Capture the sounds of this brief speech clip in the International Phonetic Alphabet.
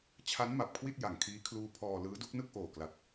t͡ɕʰ a˦˥ n m a˨˩ p̚ kʰ w i˥˩ t̚ j a˨˩ ŋ kʰ iː˦˥ kʰ l uː˦˥ pʰ ɔː˧ l ɯː˦˥ d u˦˥ k̚ n ɯ˥˩ k̚ ʔ oː˨˩ k l a˨˩ t̚

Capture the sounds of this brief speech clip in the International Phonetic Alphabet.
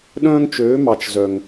ɗ œ̃˦ ŋ t͡ʃ ø˨˦ m ɑ˨ t͡ʃ z œ˨ ŋ

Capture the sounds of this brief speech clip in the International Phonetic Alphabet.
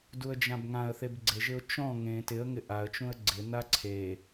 d u ə̯ d͡ʒ ã b ŋ ã ə̯ θ e b ɡ͡ǀ e ʒ ɪ ʊ̯ t͡ʃ ɔ̃ ŋ ẽ t ɪ ə̯ ŋ ɪ ʔ a ə̯ t͡ʃ ũ ə̯ ɡ͡ǀ ɪ n a ǀʰ e

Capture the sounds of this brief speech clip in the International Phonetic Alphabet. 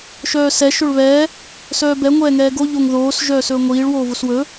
ʃ œː s ɛ ʃ ɵ ɭ β ɛː | s œː b ɛ ŋʷ ɛː ŋ ɛː ɡ o ʎ o ŋ ð oː s ʒ œː s ɵː ŋʷ iː ɭ w oː v o s w ɵː

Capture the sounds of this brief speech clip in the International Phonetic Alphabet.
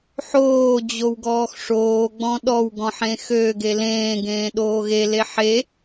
ħ oː d͡ʑ o w ɡ ɔː x ʂ oː ɡ͡b ɔ̃ ɗ ɔ w ɡ ɔ̃ ħ ẽ x ø ɡ e l ẽː ɡ ẽː ɗ oː ɣ e l e ħ e

